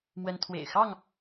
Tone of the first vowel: high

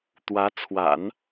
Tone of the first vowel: rising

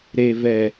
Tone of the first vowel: low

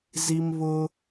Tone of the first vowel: high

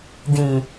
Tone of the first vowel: low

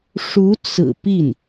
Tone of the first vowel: rising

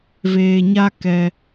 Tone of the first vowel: low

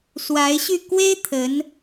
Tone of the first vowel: rising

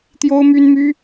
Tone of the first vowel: high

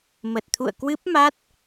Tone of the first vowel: low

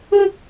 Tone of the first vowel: high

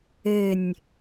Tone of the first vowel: falling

